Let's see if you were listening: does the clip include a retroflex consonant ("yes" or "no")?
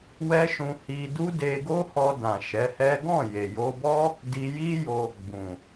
no